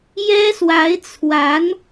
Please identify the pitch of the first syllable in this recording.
high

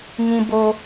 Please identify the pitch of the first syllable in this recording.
high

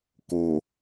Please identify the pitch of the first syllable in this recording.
low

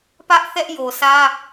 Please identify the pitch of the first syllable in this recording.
high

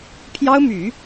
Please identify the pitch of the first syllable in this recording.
high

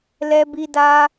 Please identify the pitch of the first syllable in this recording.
high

